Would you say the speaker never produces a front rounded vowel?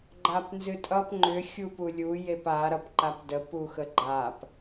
no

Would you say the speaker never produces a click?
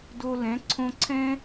no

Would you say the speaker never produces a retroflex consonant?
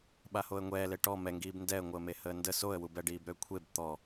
no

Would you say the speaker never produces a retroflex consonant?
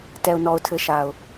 yes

